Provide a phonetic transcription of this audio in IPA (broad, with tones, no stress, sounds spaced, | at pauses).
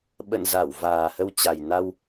ɓ ə̰˧˨ n z a˧˩ w v aː˨˩ h ə˧ w t͡ɕ a˨˩ j n a˧ w